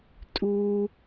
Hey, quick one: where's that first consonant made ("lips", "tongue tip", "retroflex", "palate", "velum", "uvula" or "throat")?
tongue tip